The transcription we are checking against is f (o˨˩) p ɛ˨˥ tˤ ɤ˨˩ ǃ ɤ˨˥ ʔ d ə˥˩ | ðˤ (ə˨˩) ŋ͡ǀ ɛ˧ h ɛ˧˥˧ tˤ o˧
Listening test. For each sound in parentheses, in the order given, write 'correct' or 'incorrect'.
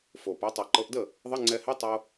correct, incorrect: ə˧˥˧

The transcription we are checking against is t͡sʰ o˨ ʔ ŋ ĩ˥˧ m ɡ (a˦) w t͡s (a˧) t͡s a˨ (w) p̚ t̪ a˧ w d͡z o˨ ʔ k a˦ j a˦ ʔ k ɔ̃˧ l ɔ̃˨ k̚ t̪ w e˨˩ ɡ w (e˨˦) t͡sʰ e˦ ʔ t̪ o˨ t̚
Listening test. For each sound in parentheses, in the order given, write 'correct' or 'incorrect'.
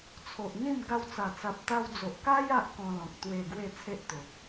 incorrect: a˧, incorrect: a˨˩, incorrect: none, incorrect: e˥˧

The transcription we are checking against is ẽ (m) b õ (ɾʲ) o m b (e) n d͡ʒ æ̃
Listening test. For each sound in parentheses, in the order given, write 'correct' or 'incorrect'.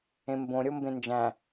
correct, correct, incorrect: ẽ

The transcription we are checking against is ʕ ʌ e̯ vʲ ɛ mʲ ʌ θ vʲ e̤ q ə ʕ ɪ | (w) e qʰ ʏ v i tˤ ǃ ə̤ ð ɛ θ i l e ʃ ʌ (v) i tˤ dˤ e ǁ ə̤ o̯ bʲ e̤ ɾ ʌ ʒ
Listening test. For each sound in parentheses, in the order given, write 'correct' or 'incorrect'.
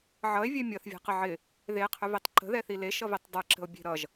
incorrect: ð, correct

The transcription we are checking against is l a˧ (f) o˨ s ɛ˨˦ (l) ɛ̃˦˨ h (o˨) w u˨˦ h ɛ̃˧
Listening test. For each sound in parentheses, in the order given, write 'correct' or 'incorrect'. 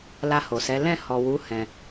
incorrect: h, correct, incorrect: ɔ˨

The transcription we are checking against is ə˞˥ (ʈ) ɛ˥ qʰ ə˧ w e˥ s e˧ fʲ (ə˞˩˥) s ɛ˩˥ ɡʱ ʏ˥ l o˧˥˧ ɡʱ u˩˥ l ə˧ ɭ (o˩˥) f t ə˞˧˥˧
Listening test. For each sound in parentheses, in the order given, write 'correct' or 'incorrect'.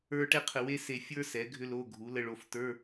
correct, incorrect: ə˞˥, incorrect: o˧

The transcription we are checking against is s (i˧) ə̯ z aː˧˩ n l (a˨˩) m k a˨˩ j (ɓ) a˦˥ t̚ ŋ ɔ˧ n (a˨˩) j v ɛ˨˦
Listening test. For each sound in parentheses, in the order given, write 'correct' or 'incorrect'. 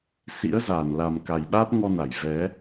incorrect: ḭ˧˥, correct, correct, incorrect: a˧˩

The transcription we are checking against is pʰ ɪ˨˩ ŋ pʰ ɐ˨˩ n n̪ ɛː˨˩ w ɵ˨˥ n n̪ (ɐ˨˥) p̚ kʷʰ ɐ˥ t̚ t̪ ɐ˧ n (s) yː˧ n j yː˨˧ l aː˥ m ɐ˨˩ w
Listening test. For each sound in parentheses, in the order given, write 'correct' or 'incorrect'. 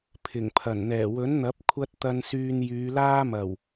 correct, correct

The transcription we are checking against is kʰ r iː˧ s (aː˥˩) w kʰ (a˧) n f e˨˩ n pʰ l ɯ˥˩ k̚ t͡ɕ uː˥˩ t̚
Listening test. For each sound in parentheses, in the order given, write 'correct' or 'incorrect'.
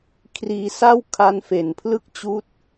incorrect: a˥˩, correct

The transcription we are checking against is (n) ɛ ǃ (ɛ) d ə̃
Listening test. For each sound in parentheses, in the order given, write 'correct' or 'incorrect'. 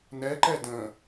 correct, correct

